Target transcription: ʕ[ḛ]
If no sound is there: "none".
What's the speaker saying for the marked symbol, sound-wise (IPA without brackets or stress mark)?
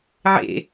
ḛ